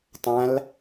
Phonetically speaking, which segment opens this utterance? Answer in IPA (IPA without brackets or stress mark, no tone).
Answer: tˤ